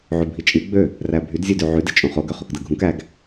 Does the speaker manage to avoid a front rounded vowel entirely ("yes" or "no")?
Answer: no